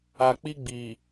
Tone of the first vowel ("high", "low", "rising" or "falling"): low